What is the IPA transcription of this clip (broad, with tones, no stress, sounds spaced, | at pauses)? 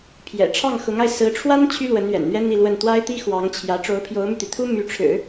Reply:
pʰ j ɛ̰˨˩ ʈ͡ʂʰ ɑ˥˩ ŋ x ʊ˧˥ ŋ a˧ ɪ̯ s ɹ̩˧˥ ʈ͡ʂʰ w a˥ n t͡ɕʰ y˥ l w ə˧˥ n ɥ ɛ̰˨˩ n n̪ ɥ ɛ˥ n̪ i˥˧ l w ə˥˩ n t̪ w a˥ ɪ̯ t̪ i˥ x w ɑ˧˥ ŋ t͡ɕʰ j ä˧˥ ʈ͡ʂ o˧˥ ʊ̯ pʰ j o˧˥ ʊ̯ m y˧ t̪ i˩ t̪ʰ u˥ m y˧˥ ʈ͡ʂʰ ɻ̩˨˩˦